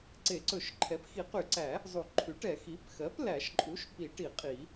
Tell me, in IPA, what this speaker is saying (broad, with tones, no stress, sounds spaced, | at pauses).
ǀ e˨˩˦ ǀ ɵ˨˩˦ ʃ ǃʰ ɛ˩˥ p x i˨˩˦ q y˨˩˦ ǀ æ˨˩˦ | zˤ u˨˩˦ ǃʰ y˩˥ ʈ ɛ˨˩˦ x i˩˥ p x ɜ˩˥ p l æ˨˩˦ ʃ ǃʼ u˩˥ ʃ p i˨˩˦ ʈ i˨˩˦ qʼ i˨˩˦